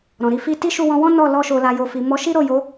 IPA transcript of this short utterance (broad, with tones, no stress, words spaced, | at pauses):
ɾɔ̃˨ɾi˧ fi˧ ti˦ʃu˧wɔ̃˧wɔ̃˦ nɔ˦˨ lɔ˧ʃo˨la˨ jo˨fi˨ mɔ˨˦ʃi˦ɾo˦˨jo˨˦